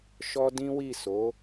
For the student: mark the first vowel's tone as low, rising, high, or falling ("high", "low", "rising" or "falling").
high